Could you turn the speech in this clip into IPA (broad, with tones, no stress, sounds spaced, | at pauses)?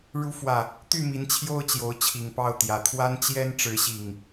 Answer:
ɻ u˨˦ f w ä˨˩ | t̪ y˥˨ m i˨˦ n t͡ɕʰ j o˦ ʊ̯ t͡ɕ j o˨˦ ʊ̯ t͡ɕʰ i˨˩ ŋ p ɑ˥˨ ʊ̯ t̪ j ä˨˩ t̪ʰ w a˦ n t͡ɕ j ɛ˦ n ʈ͡ʂ ɻ̩˨˦ ɕ i˨˩ ŋ